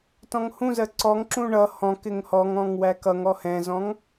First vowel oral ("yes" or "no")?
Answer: no